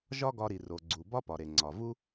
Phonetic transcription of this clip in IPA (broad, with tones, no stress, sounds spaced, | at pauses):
ʒ ɒ˥ ɡ ɒ˧ ɾ i˩ r o˩ ɡ͡ǀ u˩ b ɒ˥ p ɒ˩ ɾ e˩ ŋ͡ǀ ɒ˩ v u˥